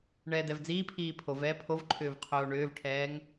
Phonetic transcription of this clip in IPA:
ɳ ɛː d ɛ v d͡z iː pʰ iː pʰ o v ɛː pʰ o v ǃʰ ʏː v qʰ oː ɳ ʏː v ʈʰ ɛː ŋ

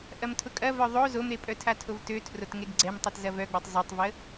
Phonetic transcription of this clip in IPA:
ʔ ɐ m tʰ ʊ kʼ ɐ v œ ðˤ o z o m ɾ e pʼ œ tʰ a tʰ o v t ø tʰ r o t ŋ e ɡ ɡ͡ǀ ɛ m tˤ i t z ɐ v œ ɡ͡b o tˤ zˤ ø tˤ v ə

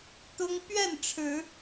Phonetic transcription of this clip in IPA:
t̪ ʊ˦ ŋ p ɥ ɛ˥˨ n ʈ͡ʂʰ ɻ̩˨˦

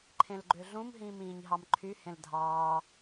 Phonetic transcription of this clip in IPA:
ǃʰ ẽ l ɡ͡ǃ ø ɮ ũ m ɦ ĩː m ĩː ɲ ɦ ɑ m ǃʰ y h ẽ l dʱ ɑː

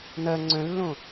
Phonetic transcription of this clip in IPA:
n ɐ ŋ͡ǀ œ̃ lː õ

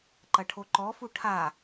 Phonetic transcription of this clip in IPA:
ǃ ɐ ʈʰ o ǃ ɔ f u ʈʰ a

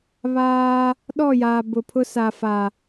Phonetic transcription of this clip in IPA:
β aː˦ | ɗ ɔ˦˨ j aː˨ b ʊ˨ pʰ ʊ˦ s a˨ f a˨

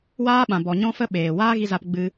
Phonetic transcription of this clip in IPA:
w aː˦ ɓ ã˨ b ɔ˨ ɲ ɔ̃˦ f ə˦ ɓ eː˨ w aː˦ ɣ i˧ z a˧ p ɡ͡b ɨ˧

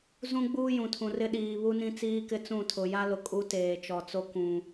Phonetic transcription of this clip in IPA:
z ũ˦ ɡ͡b uː˦ j ũ˨ tʰ ũ˨ r ɪ˦ ɗ iː˨ β u˦ n ĩ˦ t͡s iː˦ k ɪ˦ t͡s ũ˦˨ tʰ ʊ˨ j a˦ l ʊ˨ kʼ u˦ t eː˨ t͡ʃ ɔ˨ t͡s o˦ k ũ˨

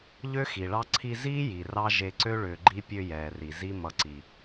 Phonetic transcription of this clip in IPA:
ʎ ø˦ x i˨ ɭ ɑ˦ ǀʰ i˧ z iː˦ j i˨ r ɑ˦ ʒ e˧ ǀ ø˦ ɭ ʏː˧ ɡ͡ǃ i˦ pʲ ø˧ j ɛː˨ r i˨ z i˦ m ʌ˧ ǀ i˧

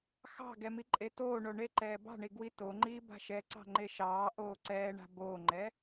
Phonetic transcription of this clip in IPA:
x ɑ̤ ɡ ɛ m i ǃʼ e t oː ɳ o ɳ e ǃ ɛː b ɑ̤ ɳ i ɡ w i t o ŋ͡ǃ iː b a̤ ʃ ɛ ǀ ɑ̤ ŋ͡ǃ e ʃ ɑː ʔ oː ǀ ɛː ɳ a̤ b oː ŋ͡ǃ ɛ

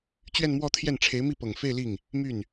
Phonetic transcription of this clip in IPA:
t͡ɕ ɥ ɛ˥˧ n m w ɔ˥˧ t̪ʰ j ɛ˥˩ n ʈ͡ʂʰ e˧˥ ɪ̯ m i˥˩ p ɤ˨˩ ŋ f e˥˧ ɪ̯ l i˥˩ ŋ | m y˥˩ n

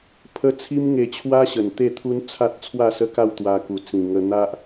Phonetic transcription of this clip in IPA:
pʰ ə˥˧ t͡sʰ i˦ m ŋ e˧ t͡ɕʰ w a˦ ɕ ə˨˩ n t̪ e˥˧ t̪ʰ u˦ n t͡sʰ a˦ t̚ t͡sʰ w a˥˧ s ə˦ k a˥˧ w t̪ w a˧ k u˨˩ t͡s ĩ˨˩ ŋ ə˧ n̪ a˦ ʔ

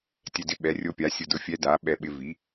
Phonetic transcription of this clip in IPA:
tʲ ɛ˧ d ɪ˧˥ ɓ ɛ˩˥ rʲ o˧˥ pʲ a˩˥ sʲ ʊ˧ d ʊ˧˥ fʲ ɛ˧˥ d a˩˥ ɓ ɛ˧ ɓ ɪ˧ v i˩˥

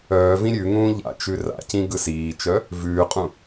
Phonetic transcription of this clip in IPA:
œː v ĩ ɾʲ ʉ ŋ ũː ʎ a̰ t͡ʃ ʉ r a̰ c ĩ ɡ ɯ s iː t͡ʃ œ | v ʉː qʼ ũ

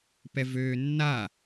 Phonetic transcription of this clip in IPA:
p ɛ v øː nː a

